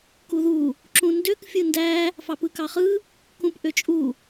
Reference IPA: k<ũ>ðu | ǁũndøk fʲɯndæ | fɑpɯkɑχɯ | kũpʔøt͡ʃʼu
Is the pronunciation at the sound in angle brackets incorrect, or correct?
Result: incorrect